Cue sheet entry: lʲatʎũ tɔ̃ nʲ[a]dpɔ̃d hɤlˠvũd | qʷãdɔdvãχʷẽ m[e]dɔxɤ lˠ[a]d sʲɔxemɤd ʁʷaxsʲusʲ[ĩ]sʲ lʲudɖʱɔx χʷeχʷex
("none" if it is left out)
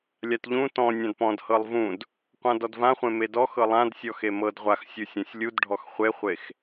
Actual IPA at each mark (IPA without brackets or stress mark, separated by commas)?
ã, e, ã, ẽ